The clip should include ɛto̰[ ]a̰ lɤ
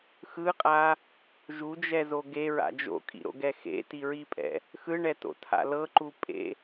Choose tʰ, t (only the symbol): tʰ